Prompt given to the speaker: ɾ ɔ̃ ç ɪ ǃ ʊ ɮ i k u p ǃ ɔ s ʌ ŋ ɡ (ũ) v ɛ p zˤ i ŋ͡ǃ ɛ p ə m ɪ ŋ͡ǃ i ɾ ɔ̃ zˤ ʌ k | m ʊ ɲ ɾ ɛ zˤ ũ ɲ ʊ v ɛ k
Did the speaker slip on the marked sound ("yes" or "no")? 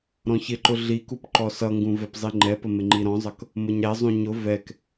no